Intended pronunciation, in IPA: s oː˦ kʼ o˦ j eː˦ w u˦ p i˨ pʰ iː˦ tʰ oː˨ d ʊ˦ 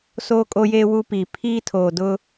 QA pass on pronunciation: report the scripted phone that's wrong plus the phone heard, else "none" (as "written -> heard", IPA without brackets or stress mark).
none